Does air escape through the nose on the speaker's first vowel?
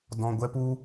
yes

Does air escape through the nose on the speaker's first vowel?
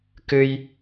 no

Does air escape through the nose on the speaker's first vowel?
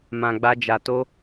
yes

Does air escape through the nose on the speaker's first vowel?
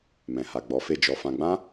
yes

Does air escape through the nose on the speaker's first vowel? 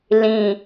yes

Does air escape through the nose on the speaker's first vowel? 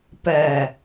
no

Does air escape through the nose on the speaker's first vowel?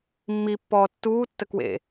no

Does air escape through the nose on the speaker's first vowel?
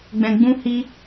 yes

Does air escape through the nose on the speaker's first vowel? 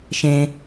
yes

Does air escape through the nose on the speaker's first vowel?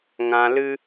yes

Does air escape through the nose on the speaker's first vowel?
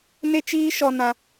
no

